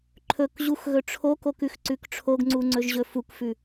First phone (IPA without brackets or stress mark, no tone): ǃʰ